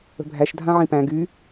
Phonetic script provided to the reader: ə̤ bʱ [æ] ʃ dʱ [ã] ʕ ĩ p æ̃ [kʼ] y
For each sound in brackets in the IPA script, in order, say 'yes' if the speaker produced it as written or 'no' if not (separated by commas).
yes, yes, no